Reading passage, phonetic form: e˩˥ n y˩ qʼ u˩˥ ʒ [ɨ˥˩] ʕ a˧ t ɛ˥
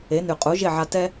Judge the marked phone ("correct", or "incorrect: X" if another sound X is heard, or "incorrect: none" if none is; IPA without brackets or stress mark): incorrect: e˥˩